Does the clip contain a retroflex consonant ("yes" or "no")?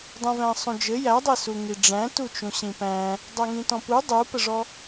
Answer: yes